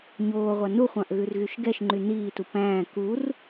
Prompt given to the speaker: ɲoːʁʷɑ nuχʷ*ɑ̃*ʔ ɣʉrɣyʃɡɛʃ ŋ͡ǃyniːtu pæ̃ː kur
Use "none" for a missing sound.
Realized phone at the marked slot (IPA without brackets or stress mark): ɑ̃